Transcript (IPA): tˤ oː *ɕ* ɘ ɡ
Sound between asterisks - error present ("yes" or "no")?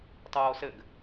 yes